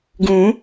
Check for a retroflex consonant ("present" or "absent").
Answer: absent